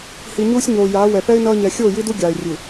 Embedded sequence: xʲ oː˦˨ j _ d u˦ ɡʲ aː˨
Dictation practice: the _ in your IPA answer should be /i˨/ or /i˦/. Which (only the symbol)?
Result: i˦